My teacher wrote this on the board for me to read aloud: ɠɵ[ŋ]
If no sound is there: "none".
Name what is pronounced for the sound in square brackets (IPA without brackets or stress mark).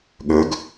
ɡ